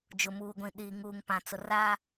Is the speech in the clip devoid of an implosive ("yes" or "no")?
no